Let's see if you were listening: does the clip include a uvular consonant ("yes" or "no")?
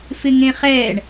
yes